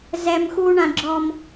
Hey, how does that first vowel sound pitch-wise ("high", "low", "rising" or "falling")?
high